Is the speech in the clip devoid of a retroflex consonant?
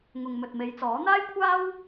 yes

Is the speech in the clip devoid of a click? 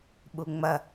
yes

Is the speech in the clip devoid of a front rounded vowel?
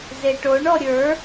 yes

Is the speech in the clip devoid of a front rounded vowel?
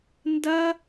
yes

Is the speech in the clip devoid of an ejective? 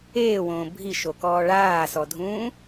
yes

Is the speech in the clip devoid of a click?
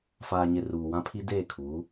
yes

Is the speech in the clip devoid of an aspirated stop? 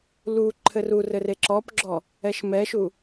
no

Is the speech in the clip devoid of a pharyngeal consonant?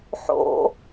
no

